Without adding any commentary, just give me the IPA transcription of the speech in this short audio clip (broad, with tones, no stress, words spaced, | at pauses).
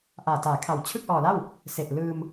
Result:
ʔaː˨˩taː˩˦kʰa˨˩w t͡ɕʰɯ˥˩k̚ʔɔː˨˩la˥˩w | se˨˩ʔlɯː˧m